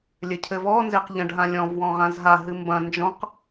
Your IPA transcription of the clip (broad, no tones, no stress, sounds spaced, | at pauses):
lʲ ɘ cʰ ɘ v ɔ n z e q ʎ ɐ̃ ɖ ɦ ã lʲ ɔ̃ v w ɔ̃ ʁ ã z ɦ a ɦ ɨ m b ɐ̃ n d͡ʒ ɔ̃ q